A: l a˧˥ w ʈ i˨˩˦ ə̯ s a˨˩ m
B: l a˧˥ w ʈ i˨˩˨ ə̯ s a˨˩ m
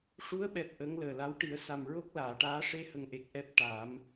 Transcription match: A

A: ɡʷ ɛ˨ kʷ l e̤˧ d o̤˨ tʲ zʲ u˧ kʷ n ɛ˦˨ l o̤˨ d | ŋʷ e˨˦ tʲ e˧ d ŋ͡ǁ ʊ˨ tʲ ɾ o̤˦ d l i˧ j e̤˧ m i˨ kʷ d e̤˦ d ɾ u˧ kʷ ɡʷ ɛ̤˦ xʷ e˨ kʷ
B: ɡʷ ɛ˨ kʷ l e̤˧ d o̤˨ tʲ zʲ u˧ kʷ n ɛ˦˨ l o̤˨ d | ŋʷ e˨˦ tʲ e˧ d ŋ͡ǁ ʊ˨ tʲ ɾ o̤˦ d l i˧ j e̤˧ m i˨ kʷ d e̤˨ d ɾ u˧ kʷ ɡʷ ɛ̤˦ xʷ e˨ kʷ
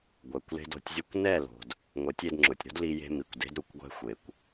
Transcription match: A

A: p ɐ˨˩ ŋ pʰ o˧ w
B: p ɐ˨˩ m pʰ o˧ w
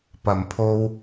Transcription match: B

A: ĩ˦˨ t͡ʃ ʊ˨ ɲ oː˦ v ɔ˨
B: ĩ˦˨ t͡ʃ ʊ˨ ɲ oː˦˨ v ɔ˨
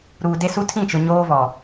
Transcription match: A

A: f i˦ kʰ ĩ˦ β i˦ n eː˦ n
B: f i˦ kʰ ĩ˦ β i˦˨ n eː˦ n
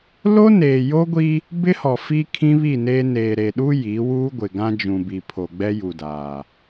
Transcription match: B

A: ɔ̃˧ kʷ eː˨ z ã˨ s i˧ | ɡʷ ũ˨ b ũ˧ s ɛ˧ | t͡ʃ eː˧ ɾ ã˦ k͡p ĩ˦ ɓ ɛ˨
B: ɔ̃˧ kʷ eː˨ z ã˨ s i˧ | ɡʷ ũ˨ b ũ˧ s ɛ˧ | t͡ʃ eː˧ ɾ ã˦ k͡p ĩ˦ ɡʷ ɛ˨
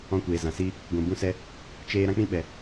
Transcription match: A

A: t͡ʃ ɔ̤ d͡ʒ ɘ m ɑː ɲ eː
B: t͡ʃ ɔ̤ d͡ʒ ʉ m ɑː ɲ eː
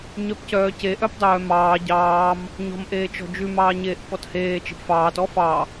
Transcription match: B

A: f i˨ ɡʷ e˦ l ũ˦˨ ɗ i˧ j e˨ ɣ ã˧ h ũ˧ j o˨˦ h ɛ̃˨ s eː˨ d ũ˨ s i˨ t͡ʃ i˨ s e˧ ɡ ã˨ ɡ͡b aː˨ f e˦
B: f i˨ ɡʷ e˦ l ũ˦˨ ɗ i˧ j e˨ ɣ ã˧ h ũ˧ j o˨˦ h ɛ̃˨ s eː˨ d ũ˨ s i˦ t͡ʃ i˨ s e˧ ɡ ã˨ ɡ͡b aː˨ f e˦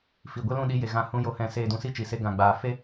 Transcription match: B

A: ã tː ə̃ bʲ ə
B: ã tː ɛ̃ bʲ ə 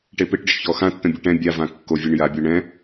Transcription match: A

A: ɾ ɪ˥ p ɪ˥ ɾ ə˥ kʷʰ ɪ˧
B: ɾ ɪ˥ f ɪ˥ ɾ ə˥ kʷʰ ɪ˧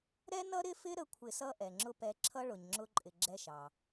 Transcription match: B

